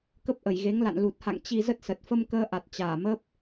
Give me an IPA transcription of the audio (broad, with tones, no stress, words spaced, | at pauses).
kə˦˥p̚ʔə˧˩jɣe˨˦ŋla̰˧˨n lu˨˩t̚ha̰˧˨ŋ t͡ɕi˧zə˦˥t̚sə˨˩t̚ fə˧mkəː˧ʔa˨˩t̚ t͡ɕaː˧˩məː˦˥p̚